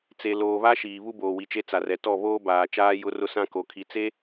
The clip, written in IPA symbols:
t͡s e˨ l oː˨ β a˦ ʃ iː˨ β u˦ b oː˨ w i˨ t͡ʃ e˦ t͡s a˨ r ɛ˨ t ɔ˦˨ β oː˦ b aː˨ t͡ʃ aː˦ j ʊ˦ r ʊ˦ s ã˦ k o˨ kʰ i˨ t͡s e˦

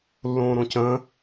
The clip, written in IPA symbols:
lː õː ɾ õ c ə̃ː

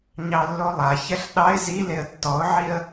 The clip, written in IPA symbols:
ɲ ɑ lː o lˠ a ç ɛ ɬ ɗ ɑ ɪ̯ z i l e ə̯ tː ɔ ʊ̯ ʕ i ə̯

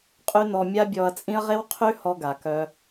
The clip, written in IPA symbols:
qʼ y˦ n ɔ˧ mʲ a˦ bʲ ɔ˧ ɐ̯ t͡sʼ ĩ˦ ɐ̯ ʁ e˦ w qʰ y˦ h ɔ˧ ɡ a˨ k œ˧

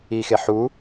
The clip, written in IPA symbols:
i x e ħ u

